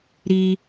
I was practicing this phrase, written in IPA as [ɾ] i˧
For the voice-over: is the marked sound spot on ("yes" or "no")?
yes